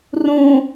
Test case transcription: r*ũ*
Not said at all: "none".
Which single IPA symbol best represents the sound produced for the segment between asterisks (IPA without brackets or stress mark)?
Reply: ũ